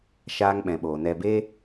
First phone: ʃ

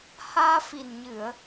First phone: h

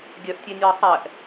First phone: ɡʲ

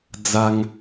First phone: d͡z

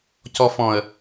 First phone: c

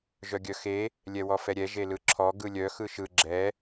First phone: ʒ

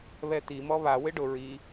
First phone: β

